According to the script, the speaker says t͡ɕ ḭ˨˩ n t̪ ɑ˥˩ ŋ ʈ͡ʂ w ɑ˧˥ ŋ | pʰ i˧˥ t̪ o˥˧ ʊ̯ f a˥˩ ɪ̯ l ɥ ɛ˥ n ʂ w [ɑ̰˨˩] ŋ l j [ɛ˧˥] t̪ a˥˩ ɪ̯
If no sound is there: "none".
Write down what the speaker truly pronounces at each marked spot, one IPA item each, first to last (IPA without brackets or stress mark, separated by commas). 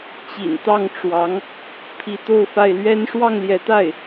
ɑ˥˩, ɛ˧˥